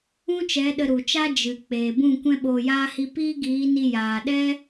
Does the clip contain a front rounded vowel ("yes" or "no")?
no